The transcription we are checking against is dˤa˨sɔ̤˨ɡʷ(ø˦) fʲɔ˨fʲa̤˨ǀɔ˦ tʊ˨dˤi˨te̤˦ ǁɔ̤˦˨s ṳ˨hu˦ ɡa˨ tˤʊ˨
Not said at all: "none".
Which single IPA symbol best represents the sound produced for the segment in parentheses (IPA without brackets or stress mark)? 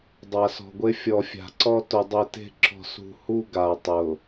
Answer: e˦